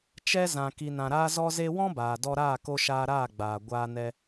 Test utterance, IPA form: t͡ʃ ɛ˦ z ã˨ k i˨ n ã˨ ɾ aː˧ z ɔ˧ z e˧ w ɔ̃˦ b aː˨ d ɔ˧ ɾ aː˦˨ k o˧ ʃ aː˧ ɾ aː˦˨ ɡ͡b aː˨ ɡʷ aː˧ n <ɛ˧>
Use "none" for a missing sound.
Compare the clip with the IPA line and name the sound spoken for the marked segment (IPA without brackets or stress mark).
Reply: ɛ˧